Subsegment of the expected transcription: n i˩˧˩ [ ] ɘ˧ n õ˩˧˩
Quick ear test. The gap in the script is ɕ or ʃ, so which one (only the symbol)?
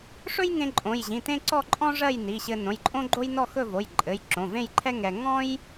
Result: ɕ